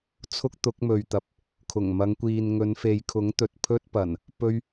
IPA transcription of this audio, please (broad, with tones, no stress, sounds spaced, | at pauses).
t͡sʰ ʊ˥ k̚ t̪ ʊ˨˥ k̚ m ɵ˨ ɥ t̪ ɐ˨ p̚ | kʰ ʊ˨˩ ŋ m ɐ˨˧ ŋ kʷ iː˨ n ŋ ɵ˨˧ n f e˨ j kʰ ʊ˨˥ ŋ t̪ ɵ˨ t̚ pʰ ɵ˥ t̚ p ɐ˨˩ n | p ɵ˥ ɥ